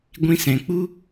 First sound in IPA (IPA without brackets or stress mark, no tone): ɡʷ